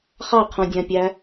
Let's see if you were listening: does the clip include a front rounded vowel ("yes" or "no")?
no